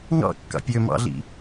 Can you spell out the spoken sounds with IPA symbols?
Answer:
ŋ ɑ̰ kː ɑ̰ pʲ ø m ɑ̰ ɮ ḭ

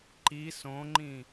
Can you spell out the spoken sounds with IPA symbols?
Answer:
ǃ i s õ ŋ͡ǃ ĩ

